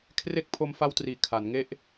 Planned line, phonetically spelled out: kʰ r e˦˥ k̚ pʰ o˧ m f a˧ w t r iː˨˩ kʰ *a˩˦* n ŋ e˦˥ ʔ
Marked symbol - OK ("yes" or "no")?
yes